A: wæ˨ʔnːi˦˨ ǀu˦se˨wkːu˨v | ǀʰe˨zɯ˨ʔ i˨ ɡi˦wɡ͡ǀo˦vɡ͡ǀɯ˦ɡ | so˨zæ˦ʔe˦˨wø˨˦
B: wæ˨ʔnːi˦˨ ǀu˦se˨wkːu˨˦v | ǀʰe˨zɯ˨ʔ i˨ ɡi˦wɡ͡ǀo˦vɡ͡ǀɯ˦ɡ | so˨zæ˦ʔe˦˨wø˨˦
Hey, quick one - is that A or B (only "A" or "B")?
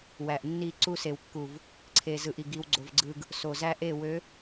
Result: A